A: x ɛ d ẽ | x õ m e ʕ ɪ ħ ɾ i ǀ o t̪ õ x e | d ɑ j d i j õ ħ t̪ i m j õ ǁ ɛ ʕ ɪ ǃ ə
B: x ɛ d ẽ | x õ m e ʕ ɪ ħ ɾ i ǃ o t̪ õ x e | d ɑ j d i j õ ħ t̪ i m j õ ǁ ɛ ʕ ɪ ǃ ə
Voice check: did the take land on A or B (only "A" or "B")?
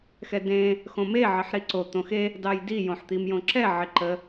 A